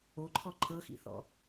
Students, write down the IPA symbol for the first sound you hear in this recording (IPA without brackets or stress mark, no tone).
o